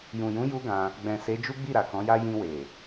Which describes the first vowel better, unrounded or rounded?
rounded